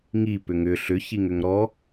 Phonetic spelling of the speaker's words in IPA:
ŋi pʏŋʏ ɬʏçiŋ ʏŋɾɔ

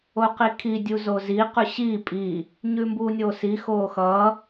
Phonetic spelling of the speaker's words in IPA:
oqikʰi dʲuzozi qʉɕiː pʼi | ɲʉmbuːnʲoːsi xoːxʌː

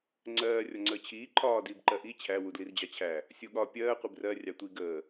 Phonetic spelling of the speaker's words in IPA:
ŋ͡ǀɜː rʲɒŋ͡ǀəːt͡ɕʰiː ǃʰɒː diːbǃɜʔi t͡ɕʰæ wudlird͡ʑɑt͡ɕʰæ | sʲuɠɒ pʲɜː qʷibrɜ rʲɑtʷi ɡəː

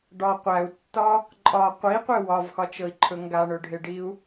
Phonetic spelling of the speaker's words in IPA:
ɖɒ qʷæu̯tːɒ | ǃʼɒ qʷiqʷe wɒvxɒt͡ʃɤi̯ǃʰɵ ŋɡaɳɵɖʱeɖiu̯

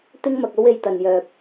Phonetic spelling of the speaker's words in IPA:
t̪ɪ˥ŋmɐ˨k̚o˥w e˧jt̪ɐ˨njœː˨p̚

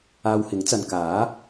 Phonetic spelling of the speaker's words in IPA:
aː˧whɪ˨˥ŋt͡sɐ˨n kaː˨˥

